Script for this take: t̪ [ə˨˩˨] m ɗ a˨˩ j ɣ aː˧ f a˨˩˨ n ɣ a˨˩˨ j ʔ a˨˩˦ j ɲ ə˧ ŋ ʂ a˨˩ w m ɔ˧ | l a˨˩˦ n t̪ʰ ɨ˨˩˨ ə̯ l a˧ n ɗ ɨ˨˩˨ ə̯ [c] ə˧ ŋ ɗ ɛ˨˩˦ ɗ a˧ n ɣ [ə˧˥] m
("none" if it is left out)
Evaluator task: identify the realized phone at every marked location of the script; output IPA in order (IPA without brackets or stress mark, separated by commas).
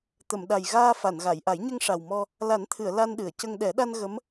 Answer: ə˨˩˨, c, ə˧˥